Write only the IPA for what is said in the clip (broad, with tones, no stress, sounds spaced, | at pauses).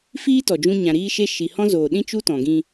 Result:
f iː˦ t ɔ˨ d͡ʒ ũ˧ ɲ ã˨ ɾ iː˧ ʃ e˧ ʃ i˨ h ɔ̃˦ z oː˨ ɗ ĩ˦ t͡ʃ u˦ t ɔ̃˨ ɡ ĩ˧